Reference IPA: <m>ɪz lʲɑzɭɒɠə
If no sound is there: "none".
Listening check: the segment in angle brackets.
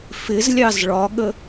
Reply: f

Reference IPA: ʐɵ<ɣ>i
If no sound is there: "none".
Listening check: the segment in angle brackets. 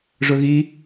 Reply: ɣ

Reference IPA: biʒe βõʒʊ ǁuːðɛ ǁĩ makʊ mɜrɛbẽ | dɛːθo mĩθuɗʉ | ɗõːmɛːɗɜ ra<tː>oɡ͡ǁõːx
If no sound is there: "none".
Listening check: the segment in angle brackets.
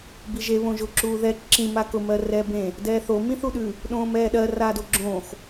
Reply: d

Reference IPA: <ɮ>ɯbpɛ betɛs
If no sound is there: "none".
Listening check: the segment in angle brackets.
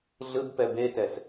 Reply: ɮ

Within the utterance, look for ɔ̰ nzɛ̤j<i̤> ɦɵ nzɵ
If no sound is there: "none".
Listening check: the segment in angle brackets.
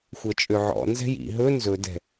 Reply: ḭ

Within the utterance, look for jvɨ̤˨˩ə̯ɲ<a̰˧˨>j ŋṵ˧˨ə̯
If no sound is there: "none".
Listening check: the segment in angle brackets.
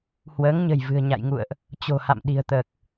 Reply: a̰˧˨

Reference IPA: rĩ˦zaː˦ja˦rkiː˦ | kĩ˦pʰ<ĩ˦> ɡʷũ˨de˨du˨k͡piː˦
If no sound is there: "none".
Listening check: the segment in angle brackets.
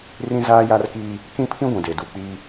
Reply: ĩ˦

